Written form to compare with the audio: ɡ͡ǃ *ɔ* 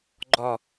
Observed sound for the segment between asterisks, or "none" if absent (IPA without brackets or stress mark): ɔ